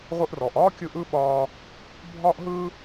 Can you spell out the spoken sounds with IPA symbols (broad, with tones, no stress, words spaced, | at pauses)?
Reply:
ʁʷɨ˧ʔrɔː˩ʔ ɒː˥kʲɯ˧ʔ ɯ˥ɓɒː˧ | bʱɒː˥ʔɦɯː˥